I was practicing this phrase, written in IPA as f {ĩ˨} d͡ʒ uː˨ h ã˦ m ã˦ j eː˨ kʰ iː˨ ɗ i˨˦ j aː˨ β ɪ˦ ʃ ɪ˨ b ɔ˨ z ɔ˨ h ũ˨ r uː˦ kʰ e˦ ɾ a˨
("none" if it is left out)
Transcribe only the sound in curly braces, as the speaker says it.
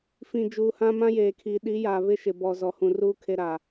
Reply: ĩ˨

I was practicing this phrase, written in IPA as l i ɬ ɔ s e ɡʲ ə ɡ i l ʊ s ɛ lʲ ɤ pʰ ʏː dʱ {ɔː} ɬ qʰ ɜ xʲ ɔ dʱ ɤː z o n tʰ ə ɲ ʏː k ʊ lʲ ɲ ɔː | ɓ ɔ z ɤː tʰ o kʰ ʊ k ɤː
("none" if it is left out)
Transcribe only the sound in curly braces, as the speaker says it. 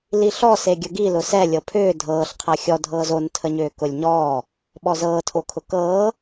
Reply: ɤː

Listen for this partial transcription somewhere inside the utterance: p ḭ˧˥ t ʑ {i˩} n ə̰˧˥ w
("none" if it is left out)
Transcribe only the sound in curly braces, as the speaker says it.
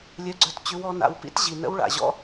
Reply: i˩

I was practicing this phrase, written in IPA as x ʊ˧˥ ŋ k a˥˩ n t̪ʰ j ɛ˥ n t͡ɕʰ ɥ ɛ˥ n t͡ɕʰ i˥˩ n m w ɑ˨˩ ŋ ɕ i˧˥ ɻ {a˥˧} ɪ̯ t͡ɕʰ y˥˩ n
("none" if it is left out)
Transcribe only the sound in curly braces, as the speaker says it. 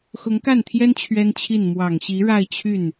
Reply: a˥˧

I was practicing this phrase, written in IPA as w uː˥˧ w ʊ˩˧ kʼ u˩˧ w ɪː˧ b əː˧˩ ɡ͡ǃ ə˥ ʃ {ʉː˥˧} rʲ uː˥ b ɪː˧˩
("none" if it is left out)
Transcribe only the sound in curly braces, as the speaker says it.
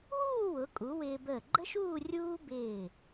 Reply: uː˥˧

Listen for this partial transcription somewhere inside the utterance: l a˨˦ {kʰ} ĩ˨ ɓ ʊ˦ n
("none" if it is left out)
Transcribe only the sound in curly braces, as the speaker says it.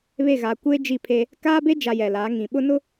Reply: ŋ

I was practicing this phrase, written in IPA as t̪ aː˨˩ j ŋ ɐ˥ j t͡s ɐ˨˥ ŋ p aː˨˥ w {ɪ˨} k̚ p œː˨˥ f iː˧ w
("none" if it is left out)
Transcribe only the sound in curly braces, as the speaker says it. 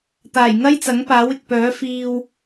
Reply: ɪ˨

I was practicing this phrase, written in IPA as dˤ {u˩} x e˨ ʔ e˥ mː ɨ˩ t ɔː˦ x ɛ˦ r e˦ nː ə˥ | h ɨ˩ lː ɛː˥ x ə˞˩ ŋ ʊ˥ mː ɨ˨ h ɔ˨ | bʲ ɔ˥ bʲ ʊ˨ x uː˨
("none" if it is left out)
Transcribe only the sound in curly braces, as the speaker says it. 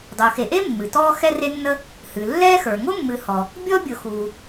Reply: u˩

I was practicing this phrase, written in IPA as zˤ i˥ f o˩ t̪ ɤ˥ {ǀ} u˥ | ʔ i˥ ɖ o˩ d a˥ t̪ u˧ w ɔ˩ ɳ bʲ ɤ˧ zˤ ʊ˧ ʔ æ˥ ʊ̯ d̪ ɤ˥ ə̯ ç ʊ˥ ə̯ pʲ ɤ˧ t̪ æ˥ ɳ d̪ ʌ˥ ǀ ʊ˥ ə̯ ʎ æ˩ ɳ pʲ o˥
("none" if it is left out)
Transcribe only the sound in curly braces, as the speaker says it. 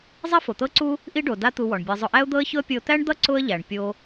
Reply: ǀ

